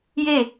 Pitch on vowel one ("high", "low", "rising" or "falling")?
falling